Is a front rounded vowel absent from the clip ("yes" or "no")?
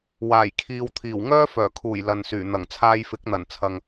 no